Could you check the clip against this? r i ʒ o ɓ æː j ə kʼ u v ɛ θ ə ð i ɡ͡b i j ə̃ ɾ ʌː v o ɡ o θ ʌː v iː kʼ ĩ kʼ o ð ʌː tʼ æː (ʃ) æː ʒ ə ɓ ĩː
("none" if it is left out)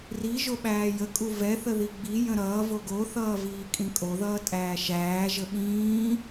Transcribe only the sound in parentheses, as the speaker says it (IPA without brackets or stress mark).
ʃ